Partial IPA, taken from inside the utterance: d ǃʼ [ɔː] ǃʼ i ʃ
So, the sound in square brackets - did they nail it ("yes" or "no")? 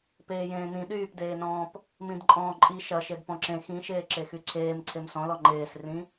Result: no